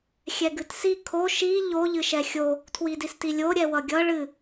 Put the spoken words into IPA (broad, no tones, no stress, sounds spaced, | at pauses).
xʲ ɛ ɡ ɨ t s i kʰ o ʃ i ʎ o ʎ ɨ ʃ ɛ xʲ o | tʰ w i d i s t i lʲ o ɾʲ ɛ w ʌ ɡʲ ʌ ɭ ɨ